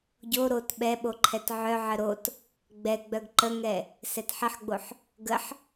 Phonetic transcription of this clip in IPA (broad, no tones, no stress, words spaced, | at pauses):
ɟo ɾot ɓɛɓo ǃʰɛtʕœʕə ɾot | ɡ͡bɛɡ͡bœɡ ǃəŋɛ | sɛtħəħɡ͡boħ | ɡəħ